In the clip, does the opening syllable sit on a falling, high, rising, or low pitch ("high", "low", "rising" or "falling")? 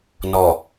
low